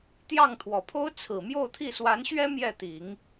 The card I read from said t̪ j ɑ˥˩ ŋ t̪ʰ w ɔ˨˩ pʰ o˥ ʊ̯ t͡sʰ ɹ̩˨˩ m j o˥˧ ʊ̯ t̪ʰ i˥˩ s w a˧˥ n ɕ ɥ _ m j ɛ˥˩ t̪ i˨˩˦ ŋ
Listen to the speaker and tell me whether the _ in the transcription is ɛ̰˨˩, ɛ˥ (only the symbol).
ɛ˥